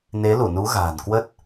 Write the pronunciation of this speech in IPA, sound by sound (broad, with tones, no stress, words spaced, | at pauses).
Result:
ne˨˦lu˧˩nu˨˦ ɣa̤ː˨˩nkwə˦˥t̚